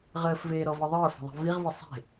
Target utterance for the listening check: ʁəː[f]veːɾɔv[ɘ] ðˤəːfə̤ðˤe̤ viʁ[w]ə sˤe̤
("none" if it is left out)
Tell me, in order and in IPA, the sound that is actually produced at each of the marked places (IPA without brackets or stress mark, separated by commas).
f, ɘ, v